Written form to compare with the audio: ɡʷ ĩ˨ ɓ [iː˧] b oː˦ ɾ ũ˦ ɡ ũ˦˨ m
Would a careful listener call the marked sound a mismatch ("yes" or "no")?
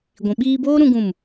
no